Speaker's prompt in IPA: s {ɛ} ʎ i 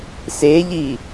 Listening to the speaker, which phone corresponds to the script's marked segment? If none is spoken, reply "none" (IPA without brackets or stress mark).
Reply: e